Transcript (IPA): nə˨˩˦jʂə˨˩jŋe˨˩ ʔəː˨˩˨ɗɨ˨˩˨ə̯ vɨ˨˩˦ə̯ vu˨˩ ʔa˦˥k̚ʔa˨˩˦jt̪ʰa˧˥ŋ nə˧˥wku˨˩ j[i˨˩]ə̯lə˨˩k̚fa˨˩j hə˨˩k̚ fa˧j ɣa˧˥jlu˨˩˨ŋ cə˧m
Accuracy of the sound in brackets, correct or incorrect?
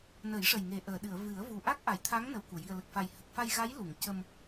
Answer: correct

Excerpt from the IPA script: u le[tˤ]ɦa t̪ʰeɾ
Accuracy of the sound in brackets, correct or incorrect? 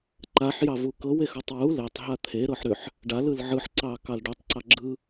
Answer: correct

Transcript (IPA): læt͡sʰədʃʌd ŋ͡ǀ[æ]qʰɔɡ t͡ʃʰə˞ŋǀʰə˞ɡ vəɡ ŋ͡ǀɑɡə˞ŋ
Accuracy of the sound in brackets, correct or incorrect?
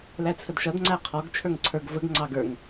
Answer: correct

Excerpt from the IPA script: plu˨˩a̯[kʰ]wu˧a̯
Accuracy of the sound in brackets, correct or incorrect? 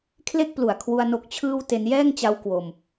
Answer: correct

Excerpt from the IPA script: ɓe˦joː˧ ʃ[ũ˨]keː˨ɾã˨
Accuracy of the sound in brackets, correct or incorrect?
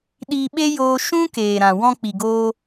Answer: incorrect: ũ˦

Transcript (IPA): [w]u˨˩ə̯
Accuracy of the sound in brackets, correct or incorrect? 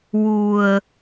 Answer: correct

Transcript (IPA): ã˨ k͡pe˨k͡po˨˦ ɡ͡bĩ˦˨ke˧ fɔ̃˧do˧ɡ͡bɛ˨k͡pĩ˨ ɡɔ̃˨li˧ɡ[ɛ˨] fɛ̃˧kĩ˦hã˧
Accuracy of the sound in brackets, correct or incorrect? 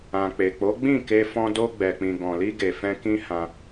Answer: incorrect: e˨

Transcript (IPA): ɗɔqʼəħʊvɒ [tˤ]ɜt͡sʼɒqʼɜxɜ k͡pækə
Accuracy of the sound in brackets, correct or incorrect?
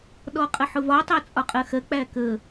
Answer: correct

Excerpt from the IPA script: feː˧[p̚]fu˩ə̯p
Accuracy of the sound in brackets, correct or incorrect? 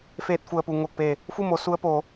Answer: incorrect: t̚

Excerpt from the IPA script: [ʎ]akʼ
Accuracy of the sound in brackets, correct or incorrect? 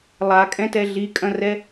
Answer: incorrect: lˠ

